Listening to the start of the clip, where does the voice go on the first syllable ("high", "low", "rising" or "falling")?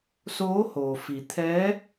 rising